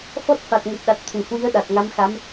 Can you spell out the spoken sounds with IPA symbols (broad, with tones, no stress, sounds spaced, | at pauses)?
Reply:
f ɔ˦˥ t̚ f a˨˩ t̚ ŋ u˨˩ t̚ ɗ a˨˩ t̚ t̪ʰ u˧˩ h w i˨˦ ə̯ ɗ a˨˩ t̚ ŋ a˨˦ m x a˨˦ m